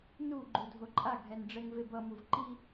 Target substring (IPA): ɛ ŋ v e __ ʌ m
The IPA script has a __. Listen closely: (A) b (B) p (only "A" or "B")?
A